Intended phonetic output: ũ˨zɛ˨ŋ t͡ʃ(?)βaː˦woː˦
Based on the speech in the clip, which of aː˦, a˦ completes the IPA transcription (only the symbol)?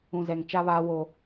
a˦